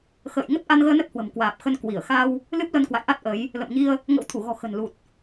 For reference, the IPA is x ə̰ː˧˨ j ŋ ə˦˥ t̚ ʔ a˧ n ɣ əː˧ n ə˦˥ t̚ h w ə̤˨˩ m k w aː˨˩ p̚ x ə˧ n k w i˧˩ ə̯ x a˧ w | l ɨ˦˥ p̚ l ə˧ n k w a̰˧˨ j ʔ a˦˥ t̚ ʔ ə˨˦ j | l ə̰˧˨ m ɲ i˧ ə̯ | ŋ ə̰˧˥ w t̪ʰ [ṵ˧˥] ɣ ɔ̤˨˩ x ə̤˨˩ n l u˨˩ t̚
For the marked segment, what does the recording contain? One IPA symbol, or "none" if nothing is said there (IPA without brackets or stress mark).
u˧˩